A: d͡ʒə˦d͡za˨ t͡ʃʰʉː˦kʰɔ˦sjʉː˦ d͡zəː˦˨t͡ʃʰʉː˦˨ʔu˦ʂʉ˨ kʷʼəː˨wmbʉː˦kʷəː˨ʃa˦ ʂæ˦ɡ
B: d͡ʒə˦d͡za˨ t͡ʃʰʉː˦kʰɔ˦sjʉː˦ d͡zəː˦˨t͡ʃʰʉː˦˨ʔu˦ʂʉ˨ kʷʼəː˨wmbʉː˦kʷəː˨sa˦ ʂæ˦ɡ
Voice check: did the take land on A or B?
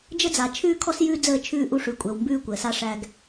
B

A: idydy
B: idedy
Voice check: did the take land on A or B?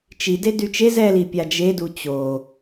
B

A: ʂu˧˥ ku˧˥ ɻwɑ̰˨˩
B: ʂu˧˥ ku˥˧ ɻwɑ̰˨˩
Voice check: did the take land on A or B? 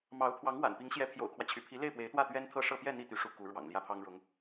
A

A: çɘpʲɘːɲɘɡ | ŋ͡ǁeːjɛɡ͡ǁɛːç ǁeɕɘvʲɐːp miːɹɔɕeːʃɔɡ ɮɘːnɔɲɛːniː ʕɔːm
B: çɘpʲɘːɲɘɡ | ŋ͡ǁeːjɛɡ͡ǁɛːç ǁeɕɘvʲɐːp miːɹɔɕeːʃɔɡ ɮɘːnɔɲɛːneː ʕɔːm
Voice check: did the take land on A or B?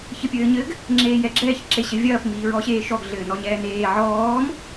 B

